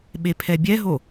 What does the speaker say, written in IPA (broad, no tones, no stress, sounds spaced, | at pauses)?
ɓ e pʰ ɛ bʲ ɛ ɦ o